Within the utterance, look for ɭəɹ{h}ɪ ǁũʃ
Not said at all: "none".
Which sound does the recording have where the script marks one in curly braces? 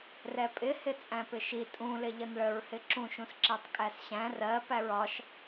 h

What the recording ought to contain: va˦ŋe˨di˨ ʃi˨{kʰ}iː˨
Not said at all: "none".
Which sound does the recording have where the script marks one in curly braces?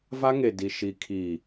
kʰ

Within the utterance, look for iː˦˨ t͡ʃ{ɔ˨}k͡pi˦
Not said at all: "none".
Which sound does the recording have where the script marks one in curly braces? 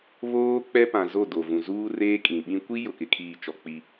ɔ˨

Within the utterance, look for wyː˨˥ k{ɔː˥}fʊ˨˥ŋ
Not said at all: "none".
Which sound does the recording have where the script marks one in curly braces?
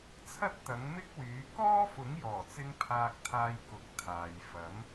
ɔː˥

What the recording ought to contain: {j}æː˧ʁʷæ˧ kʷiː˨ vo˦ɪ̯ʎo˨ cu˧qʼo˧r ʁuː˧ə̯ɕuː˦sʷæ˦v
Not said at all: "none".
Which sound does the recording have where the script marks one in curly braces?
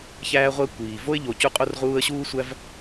ç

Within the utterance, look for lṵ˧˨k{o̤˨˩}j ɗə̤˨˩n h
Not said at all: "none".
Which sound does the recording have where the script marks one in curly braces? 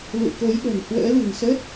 o˨˦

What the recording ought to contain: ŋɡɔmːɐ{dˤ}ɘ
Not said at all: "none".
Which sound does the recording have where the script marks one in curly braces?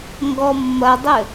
dˤ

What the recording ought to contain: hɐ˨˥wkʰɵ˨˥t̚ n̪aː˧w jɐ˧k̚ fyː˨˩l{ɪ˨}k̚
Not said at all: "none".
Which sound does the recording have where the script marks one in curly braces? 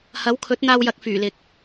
ɪ˨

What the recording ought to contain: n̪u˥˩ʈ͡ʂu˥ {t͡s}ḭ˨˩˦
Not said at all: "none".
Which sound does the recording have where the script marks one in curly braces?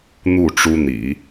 n̪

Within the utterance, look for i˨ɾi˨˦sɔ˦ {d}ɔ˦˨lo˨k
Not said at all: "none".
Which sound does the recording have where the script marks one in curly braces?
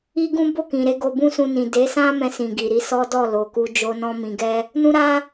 d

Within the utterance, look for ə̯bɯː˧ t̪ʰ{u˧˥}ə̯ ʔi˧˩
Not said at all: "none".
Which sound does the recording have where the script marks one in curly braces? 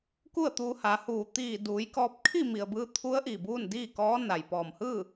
u˧˥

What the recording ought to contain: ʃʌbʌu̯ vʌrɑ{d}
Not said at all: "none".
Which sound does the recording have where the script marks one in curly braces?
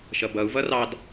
d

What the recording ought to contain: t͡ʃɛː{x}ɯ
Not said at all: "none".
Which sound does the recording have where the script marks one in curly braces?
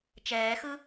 x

